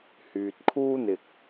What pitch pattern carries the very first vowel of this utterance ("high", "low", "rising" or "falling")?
low